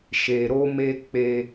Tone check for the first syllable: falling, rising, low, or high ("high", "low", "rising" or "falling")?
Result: low